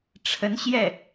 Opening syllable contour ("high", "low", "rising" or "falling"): rising